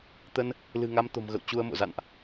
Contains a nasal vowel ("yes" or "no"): no